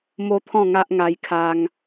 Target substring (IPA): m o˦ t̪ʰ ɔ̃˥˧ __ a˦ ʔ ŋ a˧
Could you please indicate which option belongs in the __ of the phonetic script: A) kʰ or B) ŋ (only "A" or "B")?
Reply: B